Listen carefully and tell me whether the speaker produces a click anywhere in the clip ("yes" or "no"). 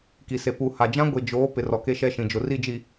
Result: no